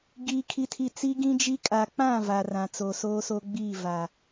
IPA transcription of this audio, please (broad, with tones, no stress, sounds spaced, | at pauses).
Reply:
ɡ iː˦ kʰ i˦ tʰ i˦ t͡s i˦ ɡ ĩ˦ d͡ʒ i˦ kʼ a˨ k͡p ã˦˨ v a˨ r ã˨ t͡s o˨ s oː˦ s o˦ ɡ͡b iː˦˨ v a˨